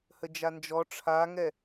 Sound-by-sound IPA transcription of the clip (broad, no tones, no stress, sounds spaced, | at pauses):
h ə d͡ʒ a n d͡ʒ ɔ ʈ͡ʂʰ a ŋ ɛ